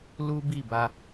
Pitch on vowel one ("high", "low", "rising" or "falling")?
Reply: high